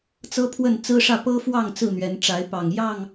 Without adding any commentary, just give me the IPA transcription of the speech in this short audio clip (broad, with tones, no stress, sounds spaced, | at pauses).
t͡s ɤ˦ pʰ w ə˥˨ n t͡s ɹ̩˦ ʂ ä˥˨ p ɤ˦ f w ɑ˥˨ ŋ t͡s ɹ̩˥˨ n̪ ɥ ɛ˨˦ n ʈ͡ʂ a˨˦ ɪ̯ p ɑ˨˩ ŋ j ɑ˥˨ ŋ